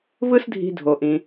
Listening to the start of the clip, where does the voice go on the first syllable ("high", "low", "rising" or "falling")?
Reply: high